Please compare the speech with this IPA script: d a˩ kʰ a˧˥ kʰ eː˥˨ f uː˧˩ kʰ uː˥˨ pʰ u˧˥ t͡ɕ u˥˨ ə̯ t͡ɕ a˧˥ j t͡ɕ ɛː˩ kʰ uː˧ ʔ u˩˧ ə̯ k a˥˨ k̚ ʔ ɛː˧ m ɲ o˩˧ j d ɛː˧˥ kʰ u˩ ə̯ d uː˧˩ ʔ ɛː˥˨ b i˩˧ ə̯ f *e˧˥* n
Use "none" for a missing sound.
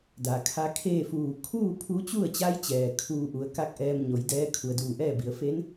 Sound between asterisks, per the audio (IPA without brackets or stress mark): e˧˥